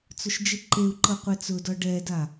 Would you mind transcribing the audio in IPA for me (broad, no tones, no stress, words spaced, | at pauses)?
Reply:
t͡sʊʃd͡ʒiǃeu̯ǃɤ qʷɛt͡sʊdɒ ɖɛda